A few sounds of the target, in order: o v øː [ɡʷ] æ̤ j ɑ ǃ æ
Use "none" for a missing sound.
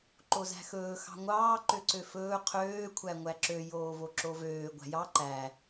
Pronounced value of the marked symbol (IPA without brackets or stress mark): ɡʷ